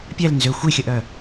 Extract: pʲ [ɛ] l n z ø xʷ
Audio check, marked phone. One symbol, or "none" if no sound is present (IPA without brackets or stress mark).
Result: ɛ